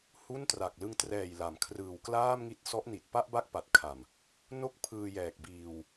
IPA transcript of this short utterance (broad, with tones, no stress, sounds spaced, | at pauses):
h u˥˩ n t r a˨˩ k̚ l ɯ˧ ŋ t r ɛː˨˩ j l a˩˦ m kʰ r ɯː˨˩ w k l aː˥˩ m ŋ i˦˥ t̚ s ɔ˦˥ ʔ n i˨˩ t̚ p a˥˩ ʔ b a˥˩ k̚ p a˨˩ t̚ kʰ a˨˩ m | n o˥˩ k̚ pʰ ɯː˧ j ɛː˨˩ k̚ b iː˧ w